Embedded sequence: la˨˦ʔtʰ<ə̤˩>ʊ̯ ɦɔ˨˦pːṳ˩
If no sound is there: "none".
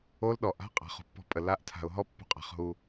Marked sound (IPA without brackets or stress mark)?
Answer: a̤˩